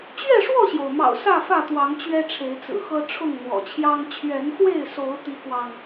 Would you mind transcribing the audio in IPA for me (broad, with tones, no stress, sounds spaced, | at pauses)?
t͡ɕ ɥ ɛ˥˨ ʂ w ɔ˥˨ ɕ j o˩ ʊ̯ m ɑ̰˨˩ ʊ̯ s ä˥˨ f ä˥˨ t̪ w ɑ˨˦ ŋ t͡ɕ ɥ ɛ˦ ʈ͡ʂʰ e˨˦ ɪ̯ t͡s ɹ̩˨˩ x ɤ˦ ʈ͡ʂʰ ʊ˥˨ ŋ n̪ w ɔ̰˨˩ t͡ɕʰ j ɑ˦ ŋ t͡ɕʰ ɥ ɛ˨˦ n x w e˥˨ ɪ̯ s o˨˦ ʊ̯ t̪ i˦ k w ɑ˨ ŋ